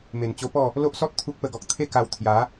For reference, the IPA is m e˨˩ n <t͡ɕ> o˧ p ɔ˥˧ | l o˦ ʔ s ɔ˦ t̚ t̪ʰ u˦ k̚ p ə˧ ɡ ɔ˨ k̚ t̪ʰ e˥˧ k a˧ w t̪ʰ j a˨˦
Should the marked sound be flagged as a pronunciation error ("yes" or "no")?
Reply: no